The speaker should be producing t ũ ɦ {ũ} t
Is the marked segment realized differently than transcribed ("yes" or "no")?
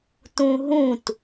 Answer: no